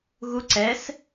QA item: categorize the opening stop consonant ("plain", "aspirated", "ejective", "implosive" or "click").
click